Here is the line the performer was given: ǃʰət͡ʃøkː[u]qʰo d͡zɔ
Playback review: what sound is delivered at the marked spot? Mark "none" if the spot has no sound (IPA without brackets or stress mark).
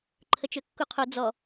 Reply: u